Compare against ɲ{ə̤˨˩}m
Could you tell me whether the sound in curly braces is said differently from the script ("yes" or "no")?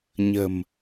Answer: no